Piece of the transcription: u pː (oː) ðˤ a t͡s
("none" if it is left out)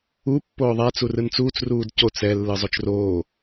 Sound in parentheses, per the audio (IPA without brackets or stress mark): oː